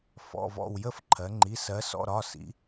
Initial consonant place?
labial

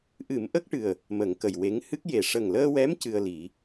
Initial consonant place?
glottal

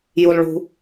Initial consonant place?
palatal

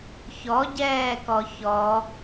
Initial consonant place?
palatal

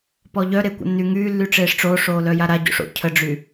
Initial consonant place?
labial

